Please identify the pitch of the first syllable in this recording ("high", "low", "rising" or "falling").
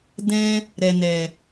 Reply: high